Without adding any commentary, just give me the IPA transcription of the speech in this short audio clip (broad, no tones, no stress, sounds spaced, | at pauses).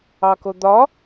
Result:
ɑ k o d̪ ɒ